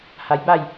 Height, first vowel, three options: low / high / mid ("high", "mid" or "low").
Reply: low